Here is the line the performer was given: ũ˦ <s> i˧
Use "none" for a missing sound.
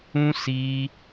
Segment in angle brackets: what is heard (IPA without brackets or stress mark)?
s